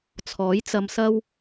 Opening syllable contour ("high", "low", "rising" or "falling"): rising